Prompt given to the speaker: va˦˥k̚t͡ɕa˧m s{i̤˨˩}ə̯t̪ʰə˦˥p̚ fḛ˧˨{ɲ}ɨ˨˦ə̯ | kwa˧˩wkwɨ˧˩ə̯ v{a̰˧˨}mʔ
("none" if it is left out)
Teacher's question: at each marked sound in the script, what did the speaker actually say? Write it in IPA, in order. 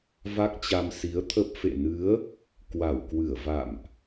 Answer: i˨˦, n, a̰˧˨

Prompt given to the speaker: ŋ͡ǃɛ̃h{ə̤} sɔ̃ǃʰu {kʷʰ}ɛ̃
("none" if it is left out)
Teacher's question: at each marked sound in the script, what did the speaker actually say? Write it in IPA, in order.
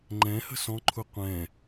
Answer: ə̤, qʷ

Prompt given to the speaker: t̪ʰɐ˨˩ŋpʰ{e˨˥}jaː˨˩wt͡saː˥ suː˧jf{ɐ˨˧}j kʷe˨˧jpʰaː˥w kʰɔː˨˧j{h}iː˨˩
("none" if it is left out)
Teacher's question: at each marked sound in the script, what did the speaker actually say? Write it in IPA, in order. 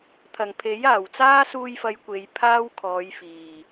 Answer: e˨˥, ɐ˨˧, f

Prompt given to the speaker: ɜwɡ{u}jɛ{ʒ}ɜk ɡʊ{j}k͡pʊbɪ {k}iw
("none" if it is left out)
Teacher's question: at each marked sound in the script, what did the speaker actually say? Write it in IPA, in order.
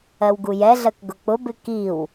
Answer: u, ɮ, none, k

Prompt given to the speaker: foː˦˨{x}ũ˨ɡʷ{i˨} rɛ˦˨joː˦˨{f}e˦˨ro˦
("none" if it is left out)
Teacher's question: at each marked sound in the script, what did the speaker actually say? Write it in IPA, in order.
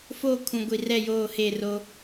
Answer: kʰ, i˨, h

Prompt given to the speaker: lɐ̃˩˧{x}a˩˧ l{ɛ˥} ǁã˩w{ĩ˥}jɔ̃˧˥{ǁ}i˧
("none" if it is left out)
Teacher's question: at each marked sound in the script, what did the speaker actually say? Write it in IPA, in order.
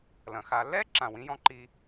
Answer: x, ɛ˥, ĩ˧˥, ǃ

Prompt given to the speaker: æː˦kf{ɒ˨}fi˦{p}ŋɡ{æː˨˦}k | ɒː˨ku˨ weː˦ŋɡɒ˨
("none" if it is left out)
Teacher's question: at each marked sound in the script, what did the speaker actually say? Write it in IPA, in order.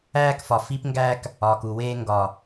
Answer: ɒ˨, p, æː˦

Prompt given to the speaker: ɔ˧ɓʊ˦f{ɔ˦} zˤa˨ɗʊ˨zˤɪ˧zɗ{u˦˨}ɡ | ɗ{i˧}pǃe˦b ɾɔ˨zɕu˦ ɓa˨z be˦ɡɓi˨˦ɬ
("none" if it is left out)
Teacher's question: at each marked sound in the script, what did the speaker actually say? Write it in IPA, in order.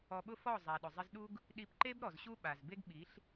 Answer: ɔ˦˨, u˦, i˧

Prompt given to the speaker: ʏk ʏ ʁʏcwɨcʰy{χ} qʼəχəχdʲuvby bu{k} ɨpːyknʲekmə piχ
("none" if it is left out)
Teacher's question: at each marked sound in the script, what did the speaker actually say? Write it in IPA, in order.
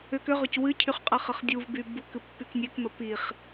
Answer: χ, k

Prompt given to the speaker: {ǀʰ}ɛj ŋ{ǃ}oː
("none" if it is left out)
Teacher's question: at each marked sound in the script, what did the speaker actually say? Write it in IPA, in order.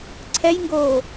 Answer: ǀʰ, ɡ

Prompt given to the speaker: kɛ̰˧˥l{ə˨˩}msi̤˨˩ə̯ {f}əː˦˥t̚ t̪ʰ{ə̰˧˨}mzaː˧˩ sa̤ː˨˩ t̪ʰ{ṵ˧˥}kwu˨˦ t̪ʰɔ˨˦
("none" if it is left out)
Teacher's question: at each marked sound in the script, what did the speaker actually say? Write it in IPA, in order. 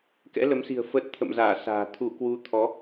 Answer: ə˨˦, f, ə̰˧˨, u˧˩

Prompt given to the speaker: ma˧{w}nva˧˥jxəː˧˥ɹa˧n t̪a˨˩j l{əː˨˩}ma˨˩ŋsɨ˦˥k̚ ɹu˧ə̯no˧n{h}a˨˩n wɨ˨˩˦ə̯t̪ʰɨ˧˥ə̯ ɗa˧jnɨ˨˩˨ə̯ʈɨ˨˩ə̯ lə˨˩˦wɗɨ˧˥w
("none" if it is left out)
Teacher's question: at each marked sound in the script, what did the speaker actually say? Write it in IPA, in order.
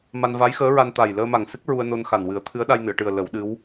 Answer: none, əː˧, x

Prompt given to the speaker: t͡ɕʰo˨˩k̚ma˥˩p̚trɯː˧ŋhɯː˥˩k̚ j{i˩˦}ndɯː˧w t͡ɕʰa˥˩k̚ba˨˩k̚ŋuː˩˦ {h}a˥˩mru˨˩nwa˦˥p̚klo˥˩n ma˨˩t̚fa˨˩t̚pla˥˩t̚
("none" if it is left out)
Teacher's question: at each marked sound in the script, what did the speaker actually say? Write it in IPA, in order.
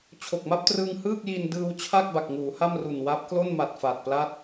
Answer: i˧, h

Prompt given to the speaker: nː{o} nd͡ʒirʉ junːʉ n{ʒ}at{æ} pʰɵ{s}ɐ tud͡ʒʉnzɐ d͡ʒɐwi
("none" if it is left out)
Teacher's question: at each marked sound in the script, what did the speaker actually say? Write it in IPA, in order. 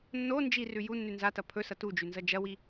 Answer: o, z, ɐ, s

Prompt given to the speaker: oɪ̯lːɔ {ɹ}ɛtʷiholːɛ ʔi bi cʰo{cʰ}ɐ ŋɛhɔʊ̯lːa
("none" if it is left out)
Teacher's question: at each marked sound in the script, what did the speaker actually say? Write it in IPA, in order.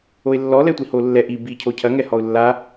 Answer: l, cʰ

